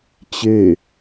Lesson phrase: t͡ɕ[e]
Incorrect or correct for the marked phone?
correct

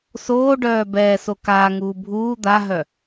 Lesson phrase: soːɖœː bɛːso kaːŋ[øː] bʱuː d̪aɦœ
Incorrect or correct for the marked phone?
incorrect: uː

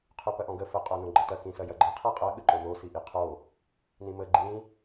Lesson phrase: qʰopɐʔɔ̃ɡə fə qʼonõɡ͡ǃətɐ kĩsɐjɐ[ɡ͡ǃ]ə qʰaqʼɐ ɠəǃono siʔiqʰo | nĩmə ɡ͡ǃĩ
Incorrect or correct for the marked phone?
correct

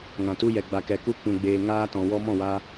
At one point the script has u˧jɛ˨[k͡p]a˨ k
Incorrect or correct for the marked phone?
incorrect: ɡ͡b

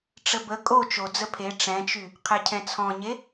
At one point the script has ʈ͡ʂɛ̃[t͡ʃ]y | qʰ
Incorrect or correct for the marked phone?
correct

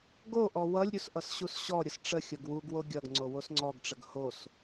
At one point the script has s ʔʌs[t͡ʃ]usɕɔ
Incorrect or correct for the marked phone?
incorrect: ɕ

